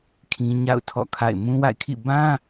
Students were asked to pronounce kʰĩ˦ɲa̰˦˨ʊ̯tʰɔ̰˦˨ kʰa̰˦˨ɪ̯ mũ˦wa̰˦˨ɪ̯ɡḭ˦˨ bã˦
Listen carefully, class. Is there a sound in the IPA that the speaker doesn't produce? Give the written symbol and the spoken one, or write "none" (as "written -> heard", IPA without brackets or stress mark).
ɡ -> kʰ